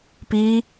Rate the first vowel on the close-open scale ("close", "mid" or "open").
close